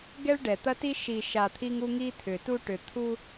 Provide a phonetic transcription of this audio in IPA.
ɡ ɛ˦ ɭ ɖ ɛ˨ t̪ ɐ˦ t i˦ ʃ i˨ ʃ a˨ t̪ʰ i˦ ŋ u˦ ŋ i˦ t̪ʰ ʏ˨ t u˦ ʈ ʏ˨ t̪ʰ u˦

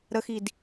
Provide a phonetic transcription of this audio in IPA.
ɾ ə x i d

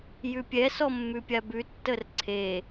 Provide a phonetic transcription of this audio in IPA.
j ʉ pʲ ɛ s ɔ mː ʉ pʲ a b ʉ tː ə r ǀʰ e

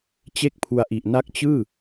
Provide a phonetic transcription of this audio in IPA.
t͡ɕ e˥˩ k̚ pʰ u˧ a̯ ʔ i˨˩ ʔ n a˥˩ k̚ t͡ɕ ɯː˥˩

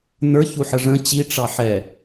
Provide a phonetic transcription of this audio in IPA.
n ə˞ ç u ħ ə ʐ ə̃ t͡ɕ i ʈ͡ʂ ɑ ħ ɛ

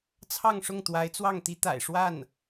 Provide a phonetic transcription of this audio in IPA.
t͡sʰ ɑ˥˧ ŋ ʂ ʊ˥˩ ŋ t̪ w a˧˥ ɪ̯ t͡s w ɑ˥˩ ŋ t̪ i˥ t̪ a̰˨˩ ɪ̯ ʂ w a˥˩ n

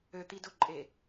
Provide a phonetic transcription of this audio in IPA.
ø t̪ i d ʊ ǃʼ e

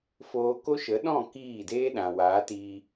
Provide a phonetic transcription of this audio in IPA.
f oː˧ k o˦ ʃ ə˨˦ ɗ ɔ̃˦˨ k iː˦˨ d eː˦ ɗ ã˨ w aː˨˦ t iː˧

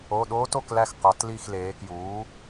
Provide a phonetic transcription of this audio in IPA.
o˩˧˩ ɗ oː˦˥ t o˦˨ k l æ˦˨ x q ɒ˩˧ t l i˦˨ x l eː˩˧ k j uː˩˥

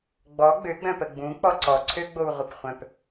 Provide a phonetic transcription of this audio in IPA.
ɡ͡b ɔ ɡ͡b ø ɡ͡b œ̃ p ə ɡ͡b ũ k͡p ɔ ǀ ɔ ǀʰ ø ɡ͡b o w ʁʷ ə p χʷ œ̃ p

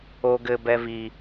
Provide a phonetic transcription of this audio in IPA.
o ɡ ɘ b ɛ v i

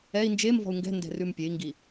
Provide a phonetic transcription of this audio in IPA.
ɛ i̯ n d͡ʒ e m v ɔ̤ u̯ ŋ ɡ ɛ̤ n d ɛ̤ r ʉ m pʲ e i̯ ŋ ɡ i

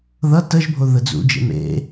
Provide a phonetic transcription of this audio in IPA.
ð ʌ t ə ʒ bʱ o ð ə d͡z ṵ d͡ʒ ḛ m ḛ

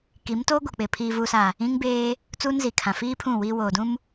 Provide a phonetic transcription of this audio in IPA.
k i˨˦ m t oː˦ ɡʷ ɛ˨ k͡p ɪ˨ pʰ iː˨ v u˨ s a˨ | ĩ˦ ŋ b eː˦ | t͡s uː˦ n z i˨ kʰ ã˨ f iː˦ pʰ ũ˦˨ w iː˦ w oː˨ d ũ˦ m

